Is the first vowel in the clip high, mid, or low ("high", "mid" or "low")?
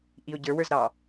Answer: high